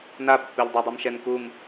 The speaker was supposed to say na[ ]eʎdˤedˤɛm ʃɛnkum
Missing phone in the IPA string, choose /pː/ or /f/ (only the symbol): pː